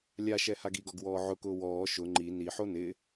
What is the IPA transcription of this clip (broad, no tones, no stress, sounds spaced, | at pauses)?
lʲ a ʃ ɛ h a ɡ i ɡ ɔ ɡ w ɔː ʕ ʊ k ʊː w ɔː ʃ ʊ ŋ͡ǃ i n i ħ o n ɪ